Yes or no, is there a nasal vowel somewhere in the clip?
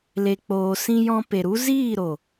yes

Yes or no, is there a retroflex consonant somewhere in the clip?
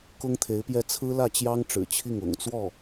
yes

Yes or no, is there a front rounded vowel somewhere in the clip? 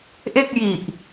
no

